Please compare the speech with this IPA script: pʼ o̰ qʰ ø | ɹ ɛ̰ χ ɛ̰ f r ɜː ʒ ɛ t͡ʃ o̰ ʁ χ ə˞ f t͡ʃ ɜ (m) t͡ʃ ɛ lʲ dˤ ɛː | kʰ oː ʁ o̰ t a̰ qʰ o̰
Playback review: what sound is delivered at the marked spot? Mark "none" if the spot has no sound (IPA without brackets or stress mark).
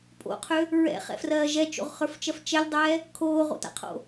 f